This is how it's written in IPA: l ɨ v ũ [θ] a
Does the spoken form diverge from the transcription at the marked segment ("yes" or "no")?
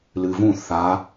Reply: no